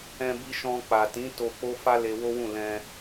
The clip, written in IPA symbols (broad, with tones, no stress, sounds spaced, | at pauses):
ɛ̃˧ b i˧ ʃ ɔ̃˧ k͡p a˨ t ĩ˨˦ t o˧ k͡p o˦ f a˦ l e˧ w o˦ w ũ˦˨ l ɛ̃˧